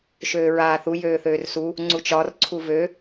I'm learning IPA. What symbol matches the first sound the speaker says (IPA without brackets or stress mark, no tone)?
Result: ʃ